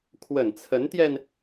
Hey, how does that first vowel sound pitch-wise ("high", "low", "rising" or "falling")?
low